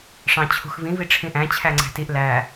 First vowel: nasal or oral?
nasal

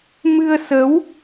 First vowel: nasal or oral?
oral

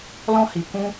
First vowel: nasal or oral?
nasal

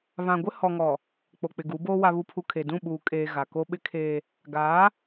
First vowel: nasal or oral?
nasal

